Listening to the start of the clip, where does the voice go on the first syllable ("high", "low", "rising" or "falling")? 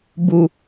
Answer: low